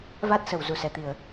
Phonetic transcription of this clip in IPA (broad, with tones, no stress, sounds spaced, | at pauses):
v a˦˥ t̚ s ə˧˩ w z u˧˩ s ɛ˧˩ t̪ i˧˩˨ ə̯